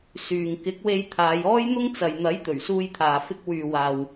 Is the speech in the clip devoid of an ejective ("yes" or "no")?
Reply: yes